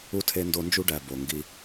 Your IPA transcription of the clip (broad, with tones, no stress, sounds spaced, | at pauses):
u˥ tʰ e˦ n d o˦ n d͡ʒ u˥ ɖ æ˨ b o˩ ŋ ɡ i˨